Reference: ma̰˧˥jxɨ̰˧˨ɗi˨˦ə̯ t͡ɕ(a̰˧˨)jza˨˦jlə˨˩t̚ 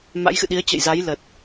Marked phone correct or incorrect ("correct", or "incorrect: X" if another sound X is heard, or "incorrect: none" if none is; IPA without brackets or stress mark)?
incorrect: ə̰˧˨